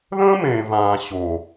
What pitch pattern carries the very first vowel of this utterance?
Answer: high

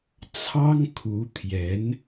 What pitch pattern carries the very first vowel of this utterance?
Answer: high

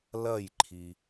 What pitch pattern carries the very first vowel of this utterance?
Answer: falling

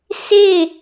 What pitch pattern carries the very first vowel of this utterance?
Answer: falling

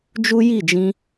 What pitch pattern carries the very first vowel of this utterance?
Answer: high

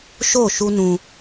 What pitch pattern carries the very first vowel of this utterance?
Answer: falling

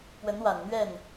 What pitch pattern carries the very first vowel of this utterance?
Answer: rising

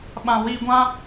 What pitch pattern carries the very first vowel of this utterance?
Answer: low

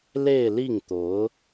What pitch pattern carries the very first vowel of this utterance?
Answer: falling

